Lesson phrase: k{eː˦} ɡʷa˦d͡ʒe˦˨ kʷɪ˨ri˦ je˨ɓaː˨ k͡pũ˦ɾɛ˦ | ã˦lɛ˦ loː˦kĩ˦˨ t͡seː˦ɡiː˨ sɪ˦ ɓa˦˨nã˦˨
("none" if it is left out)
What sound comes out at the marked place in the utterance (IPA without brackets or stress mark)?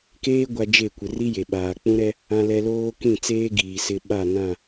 eː˦